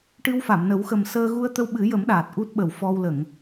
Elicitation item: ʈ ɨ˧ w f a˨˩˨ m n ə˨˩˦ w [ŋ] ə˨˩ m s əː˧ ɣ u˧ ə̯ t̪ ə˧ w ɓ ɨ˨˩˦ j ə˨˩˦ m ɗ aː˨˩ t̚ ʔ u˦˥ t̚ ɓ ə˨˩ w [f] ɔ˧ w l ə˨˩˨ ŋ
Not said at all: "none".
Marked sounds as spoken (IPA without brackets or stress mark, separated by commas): x, f